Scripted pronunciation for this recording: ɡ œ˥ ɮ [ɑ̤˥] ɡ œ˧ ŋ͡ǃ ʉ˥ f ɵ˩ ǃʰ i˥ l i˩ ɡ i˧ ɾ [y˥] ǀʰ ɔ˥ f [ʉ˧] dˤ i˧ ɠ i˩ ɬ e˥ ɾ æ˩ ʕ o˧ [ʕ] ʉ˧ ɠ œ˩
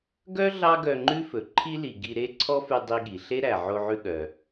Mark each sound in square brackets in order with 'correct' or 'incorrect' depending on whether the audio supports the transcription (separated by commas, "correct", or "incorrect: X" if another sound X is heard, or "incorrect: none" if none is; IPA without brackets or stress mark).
incorrect: ɑ˥, incorrect: e˥, correct, correct